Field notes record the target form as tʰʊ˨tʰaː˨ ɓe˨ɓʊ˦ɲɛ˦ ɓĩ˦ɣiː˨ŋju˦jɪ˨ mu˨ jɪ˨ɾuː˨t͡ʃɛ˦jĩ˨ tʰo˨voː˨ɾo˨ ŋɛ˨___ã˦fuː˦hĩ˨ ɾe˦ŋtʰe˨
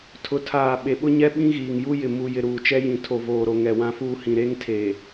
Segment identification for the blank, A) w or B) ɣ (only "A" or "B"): A